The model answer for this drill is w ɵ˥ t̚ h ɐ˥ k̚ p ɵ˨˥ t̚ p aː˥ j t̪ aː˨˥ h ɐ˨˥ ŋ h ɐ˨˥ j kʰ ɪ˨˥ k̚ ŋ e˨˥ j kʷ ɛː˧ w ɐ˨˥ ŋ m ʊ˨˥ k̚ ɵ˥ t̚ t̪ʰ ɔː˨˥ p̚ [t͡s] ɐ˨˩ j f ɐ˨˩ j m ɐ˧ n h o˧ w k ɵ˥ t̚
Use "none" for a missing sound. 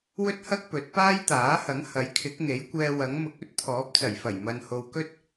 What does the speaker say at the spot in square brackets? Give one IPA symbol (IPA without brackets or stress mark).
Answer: t͡s